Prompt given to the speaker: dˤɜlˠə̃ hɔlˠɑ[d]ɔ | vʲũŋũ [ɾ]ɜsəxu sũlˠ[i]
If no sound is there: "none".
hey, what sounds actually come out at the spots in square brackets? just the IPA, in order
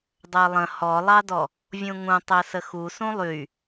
d, tˤ, y

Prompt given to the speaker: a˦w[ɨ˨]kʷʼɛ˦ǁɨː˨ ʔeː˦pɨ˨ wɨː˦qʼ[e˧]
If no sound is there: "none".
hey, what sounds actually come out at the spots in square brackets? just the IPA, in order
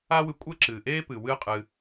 ɨ˧, ɨ˧

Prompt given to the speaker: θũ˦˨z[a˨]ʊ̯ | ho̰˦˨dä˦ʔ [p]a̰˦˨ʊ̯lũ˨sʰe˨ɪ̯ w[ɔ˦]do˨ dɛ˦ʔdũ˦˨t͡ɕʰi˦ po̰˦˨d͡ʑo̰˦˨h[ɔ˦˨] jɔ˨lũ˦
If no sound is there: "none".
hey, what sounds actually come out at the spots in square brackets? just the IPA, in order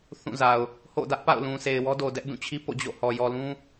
a˨, p, ɔ˦, ɔ˨

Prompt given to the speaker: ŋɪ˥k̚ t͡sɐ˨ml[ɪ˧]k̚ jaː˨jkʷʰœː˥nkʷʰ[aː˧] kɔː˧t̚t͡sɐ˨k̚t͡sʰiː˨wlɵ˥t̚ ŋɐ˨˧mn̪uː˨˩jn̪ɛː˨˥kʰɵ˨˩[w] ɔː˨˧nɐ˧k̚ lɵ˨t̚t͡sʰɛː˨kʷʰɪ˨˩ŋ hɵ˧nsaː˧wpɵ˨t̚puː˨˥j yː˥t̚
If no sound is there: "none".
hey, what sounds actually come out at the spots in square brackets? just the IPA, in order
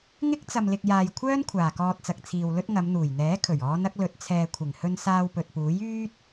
ɪ˨, aː˨˩, ɥ

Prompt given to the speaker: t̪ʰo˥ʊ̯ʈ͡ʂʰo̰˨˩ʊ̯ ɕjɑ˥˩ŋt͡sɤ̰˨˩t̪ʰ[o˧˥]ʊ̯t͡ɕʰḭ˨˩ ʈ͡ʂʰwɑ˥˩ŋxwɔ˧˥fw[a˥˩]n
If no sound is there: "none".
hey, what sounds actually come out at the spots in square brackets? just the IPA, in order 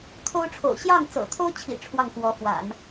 o˥, a̰˨˩˦

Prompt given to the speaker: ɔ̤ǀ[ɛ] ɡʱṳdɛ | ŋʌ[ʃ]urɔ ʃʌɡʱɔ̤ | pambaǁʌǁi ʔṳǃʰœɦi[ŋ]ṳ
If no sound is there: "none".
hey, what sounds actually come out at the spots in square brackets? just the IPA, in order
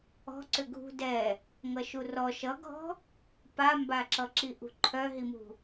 ʏ, ʃ, m

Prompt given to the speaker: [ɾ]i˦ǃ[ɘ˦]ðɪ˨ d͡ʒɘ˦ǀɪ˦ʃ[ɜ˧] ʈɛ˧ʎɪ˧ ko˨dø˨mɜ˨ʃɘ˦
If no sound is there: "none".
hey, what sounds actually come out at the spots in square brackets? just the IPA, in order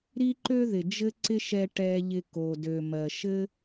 ɾ, ø˦, ɛ˧

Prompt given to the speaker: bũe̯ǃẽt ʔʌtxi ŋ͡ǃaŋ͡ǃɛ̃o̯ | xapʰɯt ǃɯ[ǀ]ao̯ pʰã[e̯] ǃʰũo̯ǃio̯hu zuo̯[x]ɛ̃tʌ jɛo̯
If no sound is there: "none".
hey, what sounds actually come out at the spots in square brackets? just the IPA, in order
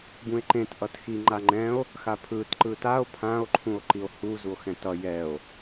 t, o̯, x

